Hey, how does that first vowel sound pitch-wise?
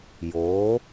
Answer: rising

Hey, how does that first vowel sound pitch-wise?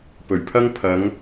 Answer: low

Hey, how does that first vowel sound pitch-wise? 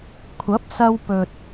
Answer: rising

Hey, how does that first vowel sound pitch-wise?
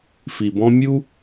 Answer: low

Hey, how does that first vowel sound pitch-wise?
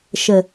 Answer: low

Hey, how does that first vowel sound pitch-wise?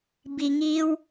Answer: low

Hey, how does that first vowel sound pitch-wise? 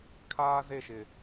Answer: high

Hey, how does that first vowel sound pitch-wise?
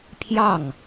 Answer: falling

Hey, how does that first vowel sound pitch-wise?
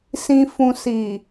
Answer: low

